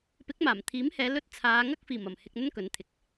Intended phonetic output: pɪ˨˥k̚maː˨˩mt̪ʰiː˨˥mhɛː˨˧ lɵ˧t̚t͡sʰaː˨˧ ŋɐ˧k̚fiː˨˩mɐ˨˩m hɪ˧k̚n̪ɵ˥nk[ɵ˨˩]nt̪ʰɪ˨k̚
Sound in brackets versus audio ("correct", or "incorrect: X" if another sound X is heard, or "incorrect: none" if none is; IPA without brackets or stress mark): incorrect: ɵ˨˥